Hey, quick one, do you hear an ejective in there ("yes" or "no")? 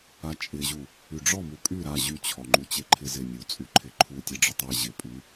yes